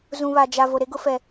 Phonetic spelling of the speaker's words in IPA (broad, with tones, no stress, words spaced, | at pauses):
zũ˨βa˨ d͡ʒa˨ vo˨ɾe˦ɡʊ˦fɛ˨